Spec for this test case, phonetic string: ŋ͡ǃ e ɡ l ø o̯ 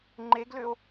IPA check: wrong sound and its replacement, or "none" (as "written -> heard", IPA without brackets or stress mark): none